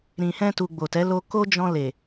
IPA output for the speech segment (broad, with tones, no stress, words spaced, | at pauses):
ɾĩ˨hɛ̃˧tu˨ ɡ͡bo˨tɛ˨˦lo˧ko˦ d͡ʒɔ̃˧ le˨